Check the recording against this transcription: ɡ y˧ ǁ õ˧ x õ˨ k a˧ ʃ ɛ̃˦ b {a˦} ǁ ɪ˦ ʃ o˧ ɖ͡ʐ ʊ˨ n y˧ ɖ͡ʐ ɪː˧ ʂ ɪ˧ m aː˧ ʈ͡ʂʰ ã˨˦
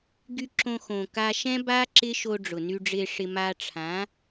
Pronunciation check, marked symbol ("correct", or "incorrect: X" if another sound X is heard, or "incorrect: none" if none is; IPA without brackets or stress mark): correct